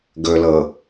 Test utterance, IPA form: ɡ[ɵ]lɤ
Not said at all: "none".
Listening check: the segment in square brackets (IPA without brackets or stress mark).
ɵ